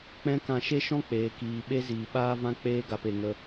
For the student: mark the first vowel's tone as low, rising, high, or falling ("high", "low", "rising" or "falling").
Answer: high